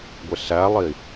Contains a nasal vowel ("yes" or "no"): no